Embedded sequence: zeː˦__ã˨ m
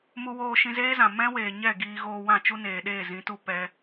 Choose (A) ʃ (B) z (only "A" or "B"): B